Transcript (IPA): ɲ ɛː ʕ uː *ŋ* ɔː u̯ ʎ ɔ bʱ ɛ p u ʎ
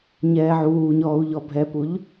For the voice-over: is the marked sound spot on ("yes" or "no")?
no